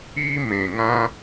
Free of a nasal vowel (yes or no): no